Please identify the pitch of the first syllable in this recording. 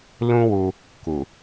high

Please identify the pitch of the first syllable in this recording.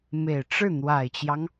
low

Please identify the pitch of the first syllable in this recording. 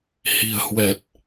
low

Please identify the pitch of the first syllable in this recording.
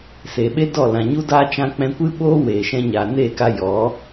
low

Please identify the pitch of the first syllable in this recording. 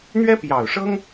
high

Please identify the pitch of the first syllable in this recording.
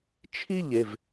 falling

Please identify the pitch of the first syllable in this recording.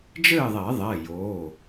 falling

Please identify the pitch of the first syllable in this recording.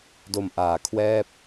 low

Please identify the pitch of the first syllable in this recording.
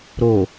low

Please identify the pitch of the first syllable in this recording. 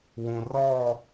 low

